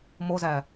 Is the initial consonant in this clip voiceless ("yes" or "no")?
no